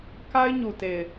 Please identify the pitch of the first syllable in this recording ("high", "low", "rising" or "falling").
high